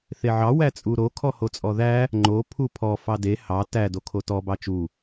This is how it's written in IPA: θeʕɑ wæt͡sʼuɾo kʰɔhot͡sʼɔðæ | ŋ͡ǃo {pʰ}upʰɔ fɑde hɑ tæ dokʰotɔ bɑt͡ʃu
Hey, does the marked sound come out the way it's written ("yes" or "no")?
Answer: yes